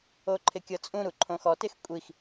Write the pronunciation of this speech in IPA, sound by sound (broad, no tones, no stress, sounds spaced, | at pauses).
o ǃʰ ɪ kʲ ɤ t͡sʼ ũ ɾ u ǃʰ õ x ɔ t ɪ x kʷʼ i x